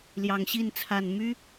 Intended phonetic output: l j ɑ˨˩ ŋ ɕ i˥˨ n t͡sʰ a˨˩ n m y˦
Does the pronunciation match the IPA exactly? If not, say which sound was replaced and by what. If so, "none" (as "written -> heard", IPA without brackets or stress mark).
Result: none